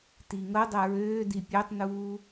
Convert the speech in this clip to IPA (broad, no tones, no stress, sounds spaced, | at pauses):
t i ŋ ɤ dˤ ɛ ɹ øː d i pʲ ø tˤ n uː